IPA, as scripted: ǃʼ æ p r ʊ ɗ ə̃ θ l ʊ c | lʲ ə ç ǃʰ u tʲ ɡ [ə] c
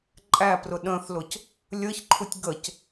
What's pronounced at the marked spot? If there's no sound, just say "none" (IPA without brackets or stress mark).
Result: ə